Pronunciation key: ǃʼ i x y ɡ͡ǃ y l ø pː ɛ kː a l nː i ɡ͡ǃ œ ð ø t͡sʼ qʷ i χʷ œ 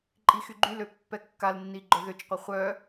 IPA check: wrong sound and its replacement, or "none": t͡sʼ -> t͡ʃ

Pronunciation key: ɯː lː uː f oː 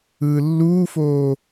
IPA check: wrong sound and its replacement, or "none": none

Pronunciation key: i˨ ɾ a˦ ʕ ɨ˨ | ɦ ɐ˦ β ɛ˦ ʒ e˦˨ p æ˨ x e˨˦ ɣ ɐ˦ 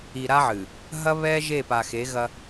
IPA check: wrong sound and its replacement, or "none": æ˨ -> a˨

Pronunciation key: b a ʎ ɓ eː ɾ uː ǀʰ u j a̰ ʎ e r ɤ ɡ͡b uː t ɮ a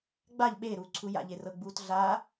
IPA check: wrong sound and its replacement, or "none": b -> ɡ͡b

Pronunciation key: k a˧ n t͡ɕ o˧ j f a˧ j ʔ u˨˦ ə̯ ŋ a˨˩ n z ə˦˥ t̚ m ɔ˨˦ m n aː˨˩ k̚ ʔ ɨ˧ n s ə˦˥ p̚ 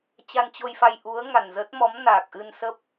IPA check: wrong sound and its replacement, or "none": k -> t͡ɕ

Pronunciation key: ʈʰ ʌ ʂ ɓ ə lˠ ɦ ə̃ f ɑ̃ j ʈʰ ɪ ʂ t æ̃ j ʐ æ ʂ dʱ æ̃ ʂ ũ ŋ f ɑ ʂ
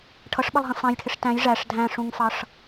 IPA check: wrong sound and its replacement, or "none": none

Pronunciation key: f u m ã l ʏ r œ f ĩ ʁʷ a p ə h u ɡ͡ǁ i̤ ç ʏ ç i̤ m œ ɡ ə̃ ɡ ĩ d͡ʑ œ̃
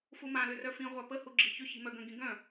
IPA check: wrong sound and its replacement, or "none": d͡ʑ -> ɡ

